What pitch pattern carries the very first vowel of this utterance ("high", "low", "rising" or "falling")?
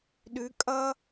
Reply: rising